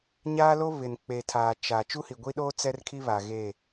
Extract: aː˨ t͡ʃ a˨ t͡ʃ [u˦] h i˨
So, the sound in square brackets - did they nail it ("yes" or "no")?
yes